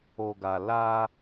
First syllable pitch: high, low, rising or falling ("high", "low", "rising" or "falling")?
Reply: low